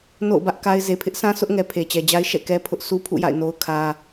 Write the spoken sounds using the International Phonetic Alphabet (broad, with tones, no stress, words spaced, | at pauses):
no̰˦˨ʊ̯bä˦ʔ ka˦ɪ̯ ze˨pʰɪ˦ʔsã˦ sʰʊ˦ʔŋɛ˨ pʰe˨t͡ɕɛ˨d͡ʑa˦ɪ̯ ʃɛ̰˦˨kɛ˦ pʰʊ˦ʔsʰu˦pʰṵ˦˨ja̰˦˨ɪ̯ no˦ʊ̯kʰä˦